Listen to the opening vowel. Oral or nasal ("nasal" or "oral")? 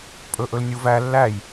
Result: oral